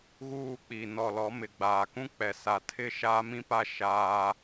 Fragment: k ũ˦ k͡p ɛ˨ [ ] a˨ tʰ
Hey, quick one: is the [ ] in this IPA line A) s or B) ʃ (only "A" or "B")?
A